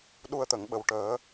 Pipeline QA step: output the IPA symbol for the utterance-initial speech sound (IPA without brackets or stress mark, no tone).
ɗ